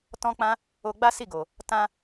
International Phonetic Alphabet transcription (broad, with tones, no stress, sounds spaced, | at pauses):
t ɔ̃˦ k͡p ã˦ | o˧ ɡ͡b a˦ s i˦˨ ɡ o˨ | t ã˧